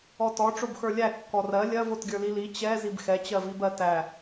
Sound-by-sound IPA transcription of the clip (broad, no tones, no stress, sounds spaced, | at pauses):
ɔ t ɔ ʈ͡ʂ o b x ə˞ lʲ æ kː ɔ r ɜ lʲ ɜ v o t ɡʲ ə˞ l i l i t͡ɕ ɛ z i b x ɛ t͡ɕ ɜ v i b ɜ t æ